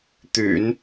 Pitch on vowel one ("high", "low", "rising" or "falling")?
low